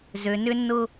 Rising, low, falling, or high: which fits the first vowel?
low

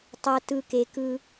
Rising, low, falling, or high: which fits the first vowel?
low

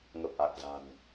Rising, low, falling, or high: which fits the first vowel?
low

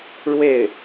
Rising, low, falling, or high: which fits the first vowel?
falling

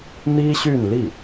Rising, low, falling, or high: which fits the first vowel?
high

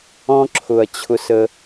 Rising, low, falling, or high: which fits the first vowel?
high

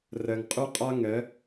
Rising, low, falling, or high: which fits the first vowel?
low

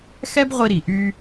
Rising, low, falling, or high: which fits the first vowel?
high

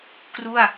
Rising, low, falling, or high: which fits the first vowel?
falling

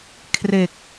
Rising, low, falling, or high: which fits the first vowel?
low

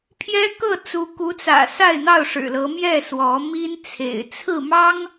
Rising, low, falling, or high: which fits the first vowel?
high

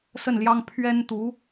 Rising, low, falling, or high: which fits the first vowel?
falling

